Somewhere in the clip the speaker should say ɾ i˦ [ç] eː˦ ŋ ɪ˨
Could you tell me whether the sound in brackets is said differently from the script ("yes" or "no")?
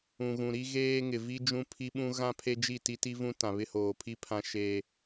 yes